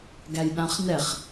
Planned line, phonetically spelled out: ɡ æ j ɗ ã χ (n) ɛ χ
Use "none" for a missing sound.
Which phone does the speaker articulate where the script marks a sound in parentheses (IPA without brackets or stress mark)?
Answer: n